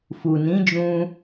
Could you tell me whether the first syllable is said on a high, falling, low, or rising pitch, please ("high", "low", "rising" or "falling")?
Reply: low